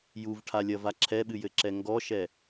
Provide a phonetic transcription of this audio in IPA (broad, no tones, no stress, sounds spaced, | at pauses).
j u v ʈʰ a lʲ ɐ v a ǁʰ ɛ ɓ ɨ j ɘ ǁ ɛ ŋ ɡ ɔ ʃ ɛ